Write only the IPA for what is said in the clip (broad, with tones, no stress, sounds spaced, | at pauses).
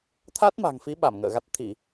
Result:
t̪ʰ a˦˥ t̚ m a̤˨˩ ŋ f i˨˦ ɓ a˧˩ m ŋ ə̰ː˧˨ ɣ a˦˥ t̚ t̪ʰ i˧˩˨